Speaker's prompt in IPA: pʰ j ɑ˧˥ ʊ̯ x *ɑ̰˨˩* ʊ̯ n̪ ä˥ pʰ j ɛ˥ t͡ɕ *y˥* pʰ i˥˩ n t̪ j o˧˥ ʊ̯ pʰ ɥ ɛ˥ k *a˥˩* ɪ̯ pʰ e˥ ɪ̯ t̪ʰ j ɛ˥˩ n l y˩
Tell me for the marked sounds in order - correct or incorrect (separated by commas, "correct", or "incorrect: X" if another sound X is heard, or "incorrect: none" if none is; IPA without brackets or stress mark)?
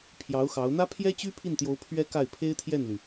incorrect: ɑ˧˥, correct, correct